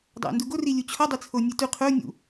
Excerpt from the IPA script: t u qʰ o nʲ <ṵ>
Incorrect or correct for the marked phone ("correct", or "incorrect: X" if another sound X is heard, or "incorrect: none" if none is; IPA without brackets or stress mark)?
correct